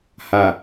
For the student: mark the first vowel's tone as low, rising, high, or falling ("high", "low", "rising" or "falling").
low